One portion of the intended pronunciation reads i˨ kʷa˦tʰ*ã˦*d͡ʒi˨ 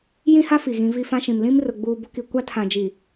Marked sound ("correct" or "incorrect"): incorrect